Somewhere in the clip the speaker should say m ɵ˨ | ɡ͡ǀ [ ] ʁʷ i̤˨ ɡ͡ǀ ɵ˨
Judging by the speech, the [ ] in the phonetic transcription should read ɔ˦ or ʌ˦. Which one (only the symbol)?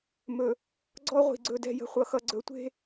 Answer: ɔ˦